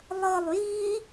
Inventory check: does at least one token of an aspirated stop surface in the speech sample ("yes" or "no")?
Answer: no